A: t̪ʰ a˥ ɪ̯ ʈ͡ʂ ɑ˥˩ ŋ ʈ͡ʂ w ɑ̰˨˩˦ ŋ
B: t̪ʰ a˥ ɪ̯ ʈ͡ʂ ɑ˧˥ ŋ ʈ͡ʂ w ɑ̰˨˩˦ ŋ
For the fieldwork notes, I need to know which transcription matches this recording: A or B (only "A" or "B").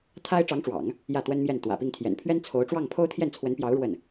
B